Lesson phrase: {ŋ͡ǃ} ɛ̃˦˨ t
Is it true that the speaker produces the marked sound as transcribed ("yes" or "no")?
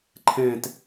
no